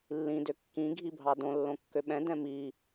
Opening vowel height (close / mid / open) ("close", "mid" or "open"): close